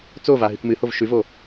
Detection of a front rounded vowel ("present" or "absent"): absent